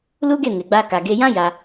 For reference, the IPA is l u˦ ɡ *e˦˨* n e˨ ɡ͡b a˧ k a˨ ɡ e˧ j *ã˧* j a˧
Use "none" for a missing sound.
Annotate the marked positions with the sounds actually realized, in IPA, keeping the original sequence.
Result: e˦˨, ã˦

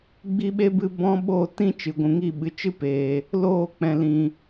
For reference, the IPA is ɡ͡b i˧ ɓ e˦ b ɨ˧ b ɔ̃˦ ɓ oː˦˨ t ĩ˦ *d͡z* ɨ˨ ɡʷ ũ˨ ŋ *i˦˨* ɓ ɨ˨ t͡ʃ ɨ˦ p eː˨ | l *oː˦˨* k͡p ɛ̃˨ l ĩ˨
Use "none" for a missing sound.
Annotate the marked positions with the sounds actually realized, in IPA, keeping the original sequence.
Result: t͡ʃ, i˦˨, oː˦˨

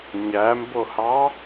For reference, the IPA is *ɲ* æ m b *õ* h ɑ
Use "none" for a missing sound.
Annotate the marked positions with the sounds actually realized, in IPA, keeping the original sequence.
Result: ɲ, o

